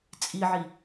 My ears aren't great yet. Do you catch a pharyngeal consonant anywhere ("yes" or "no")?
yes